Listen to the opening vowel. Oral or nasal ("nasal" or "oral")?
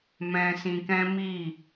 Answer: nasal